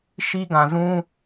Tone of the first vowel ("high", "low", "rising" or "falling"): high